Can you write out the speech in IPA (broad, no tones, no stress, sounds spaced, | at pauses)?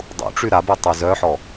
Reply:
dˤ ṵ ʈ͡ʂ y ɾ a b u tˤ y z œ ħ ɔ